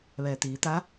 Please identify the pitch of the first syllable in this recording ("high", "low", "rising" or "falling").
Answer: low